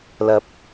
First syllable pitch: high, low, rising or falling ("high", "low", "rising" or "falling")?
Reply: low